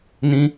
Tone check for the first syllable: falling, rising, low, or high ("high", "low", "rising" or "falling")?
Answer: high